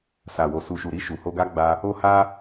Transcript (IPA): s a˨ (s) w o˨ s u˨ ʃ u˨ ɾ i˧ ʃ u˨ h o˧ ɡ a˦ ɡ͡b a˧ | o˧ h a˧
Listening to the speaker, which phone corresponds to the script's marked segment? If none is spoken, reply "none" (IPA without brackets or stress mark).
none